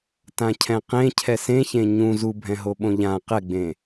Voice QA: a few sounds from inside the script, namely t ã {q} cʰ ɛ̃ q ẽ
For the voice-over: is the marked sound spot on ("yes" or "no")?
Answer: no